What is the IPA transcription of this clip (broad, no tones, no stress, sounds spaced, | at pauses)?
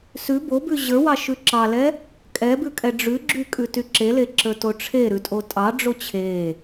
s ʉ b o b ʉ ʑ ə˞ w ɑ ʃ ʉ ǁ ɑ l ɛ | kʼ ɛ b ʉ kʼ ɛ ɖ͡ʐ ʉ ɡ͡ǁ y kʼ ʉ t y ǁ e l e ǁ ə˞ t o ʈ͡ʂʰ e ɾ ʉ tʼ o tʼ ɑ ɖ͡ʐ o t͡ɕʰ e